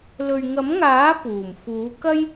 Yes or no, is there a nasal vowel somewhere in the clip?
no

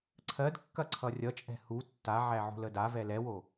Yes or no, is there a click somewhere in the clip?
yes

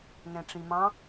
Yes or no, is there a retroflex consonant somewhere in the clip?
yes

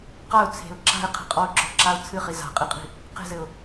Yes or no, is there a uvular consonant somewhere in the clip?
yes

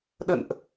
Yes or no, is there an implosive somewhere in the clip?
yes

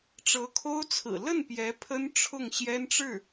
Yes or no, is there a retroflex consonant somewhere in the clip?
yes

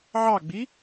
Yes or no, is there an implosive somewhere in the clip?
no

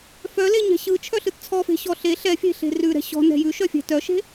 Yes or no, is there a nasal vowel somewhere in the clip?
no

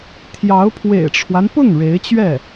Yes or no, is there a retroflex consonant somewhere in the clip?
yes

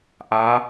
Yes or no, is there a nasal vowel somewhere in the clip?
no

